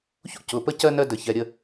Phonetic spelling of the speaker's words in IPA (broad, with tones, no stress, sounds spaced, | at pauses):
ç ṵ˦ c ʊ˩˧˩ p ə˦ c ɜ˦ n ɜ˦ d ə˧˩˧ ç ɛ˩˧˩ ɾʲ ə˥˨